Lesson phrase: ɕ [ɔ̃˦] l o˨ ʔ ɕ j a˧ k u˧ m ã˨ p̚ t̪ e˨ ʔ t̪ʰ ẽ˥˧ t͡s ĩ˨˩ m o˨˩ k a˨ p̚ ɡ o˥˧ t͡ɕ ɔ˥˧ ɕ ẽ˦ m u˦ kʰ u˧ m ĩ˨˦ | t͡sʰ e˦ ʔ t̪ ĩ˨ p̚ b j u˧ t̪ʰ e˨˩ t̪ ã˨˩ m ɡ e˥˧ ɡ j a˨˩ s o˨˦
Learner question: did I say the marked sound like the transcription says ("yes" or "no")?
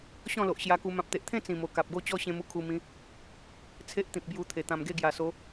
no